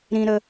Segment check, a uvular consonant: absent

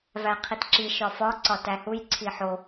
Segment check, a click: present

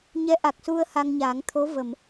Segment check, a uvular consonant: absent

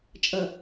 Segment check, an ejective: present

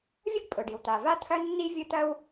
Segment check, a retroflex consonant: present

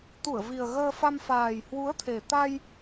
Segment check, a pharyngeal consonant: absent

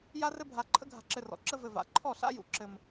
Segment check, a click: present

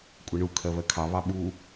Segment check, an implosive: present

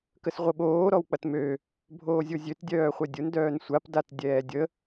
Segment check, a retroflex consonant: absent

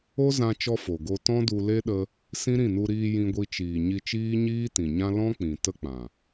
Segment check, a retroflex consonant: absent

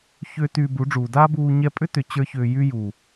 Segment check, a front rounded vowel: present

